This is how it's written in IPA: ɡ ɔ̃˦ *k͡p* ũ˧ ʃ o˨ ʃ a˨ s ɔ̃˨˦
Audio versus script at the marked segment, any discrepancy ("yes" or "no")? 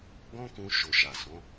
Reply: yes